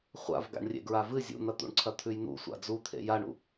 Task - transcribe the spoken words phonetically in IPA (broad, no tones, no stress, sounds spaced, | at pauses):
χʷ a̰ v ɡ a̰ ɳ rʲ ḛ ɡ ɹ a v ɨ zʲ ṵ n̪ ɐ t̪ ṵ ɳ ǀʰ ɐ t̪ʰ ʉ j n̪ ṵ sʷ a̰ d͡z u t̪ʰ ḛ j a ɳ ṵ